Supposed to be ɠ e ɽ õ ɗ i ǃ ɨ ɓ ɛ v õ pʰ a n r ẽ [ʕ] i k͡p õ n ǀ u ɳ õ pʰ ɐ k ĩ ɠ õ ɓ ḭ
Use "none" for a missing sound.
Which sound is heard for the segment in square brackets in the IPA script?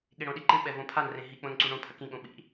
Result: ɦ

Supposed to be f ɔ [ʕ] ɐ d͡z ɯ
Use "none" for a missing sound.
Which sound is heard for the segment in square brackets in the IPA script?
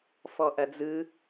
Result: ʔ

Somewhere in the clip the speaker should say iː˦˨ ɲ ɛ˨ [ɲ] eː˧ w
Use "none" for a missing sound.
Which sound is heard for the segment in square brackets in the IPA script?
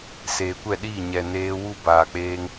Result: n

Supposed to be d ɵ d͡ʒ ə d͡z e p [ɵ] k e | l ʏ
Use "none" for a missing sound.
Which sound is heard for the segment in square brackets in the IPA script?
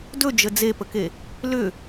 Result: ə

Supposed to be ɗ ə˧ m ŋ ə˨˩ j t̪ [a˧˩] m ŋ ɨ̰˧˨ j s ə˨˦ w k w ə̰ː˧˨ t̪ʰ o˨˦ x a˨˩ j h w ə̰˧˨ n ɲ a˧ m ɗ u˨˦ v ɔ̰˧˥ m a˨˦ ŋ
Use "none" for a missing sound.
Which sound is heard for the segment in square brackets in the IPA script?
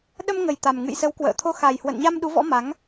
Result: a˨˩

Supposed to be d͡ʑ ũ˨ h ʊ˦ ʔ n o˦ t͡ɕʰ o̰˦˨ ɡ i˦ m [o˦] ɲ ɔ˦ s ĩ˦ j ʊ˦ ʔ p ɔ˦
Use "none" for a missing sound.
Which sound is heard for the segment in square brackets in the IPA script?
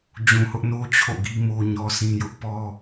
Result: o˦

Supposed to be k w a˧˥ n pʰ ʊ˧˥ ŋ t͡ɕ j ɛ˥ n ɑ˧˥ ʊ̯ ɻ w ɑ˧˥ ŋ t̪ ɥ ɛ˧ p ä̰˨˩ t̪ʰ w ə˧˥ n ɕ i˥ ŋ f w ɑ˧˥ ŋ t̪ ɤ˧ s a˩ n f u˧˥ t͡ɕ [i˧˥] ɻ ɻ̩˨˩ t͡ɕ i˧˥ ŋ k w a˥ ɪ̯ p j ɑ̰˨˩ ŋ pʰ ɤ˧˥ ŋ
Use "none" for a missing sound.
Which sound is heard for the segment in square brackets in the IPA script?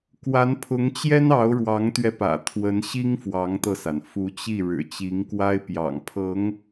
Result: i˥˩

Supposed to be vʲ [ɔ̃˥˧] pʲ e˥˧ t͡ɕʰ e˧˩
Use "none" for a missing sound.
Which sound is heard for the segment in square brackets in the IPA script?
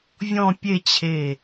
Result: ɔ̃˥˧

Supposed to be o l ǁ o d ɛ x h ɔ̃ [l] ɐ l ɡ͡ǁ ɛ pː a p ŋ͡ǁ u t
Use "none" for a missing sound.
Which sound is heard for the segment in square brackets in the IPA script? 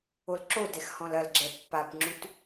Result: l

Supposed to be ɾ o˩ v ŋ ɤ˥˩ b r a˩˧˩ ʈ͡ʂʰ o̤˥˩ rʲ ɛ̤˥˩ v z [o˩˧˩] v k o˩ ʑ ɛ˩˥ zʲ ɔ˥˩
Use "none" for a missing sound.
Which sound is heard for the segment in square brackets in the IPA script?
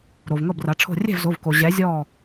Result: o˩˧˩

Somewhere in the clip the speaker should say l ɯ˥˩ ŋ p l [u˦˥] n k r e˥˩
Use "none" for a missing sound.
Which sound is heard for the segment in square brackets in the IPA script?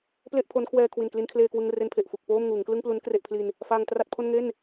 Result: u˦˥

